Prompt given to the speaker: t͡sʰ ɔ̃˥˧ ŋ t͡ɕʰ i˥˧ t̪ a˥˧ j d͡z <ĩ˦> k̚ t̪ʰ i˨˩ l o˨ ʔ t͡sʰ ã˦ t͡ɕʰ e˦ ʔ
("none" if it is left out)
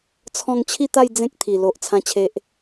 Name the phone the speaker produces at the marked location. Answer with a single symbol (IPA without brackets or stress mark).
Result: ẽ˦